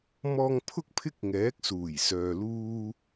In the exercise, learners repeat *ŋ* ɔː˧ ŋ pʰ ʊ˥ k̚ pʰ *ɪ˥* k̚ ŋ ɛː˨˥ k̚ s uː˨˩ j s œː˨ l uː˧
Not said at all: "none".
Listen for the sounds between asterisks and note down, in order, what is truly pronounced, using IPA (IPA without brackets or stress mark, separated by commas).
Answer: m, ɪ˥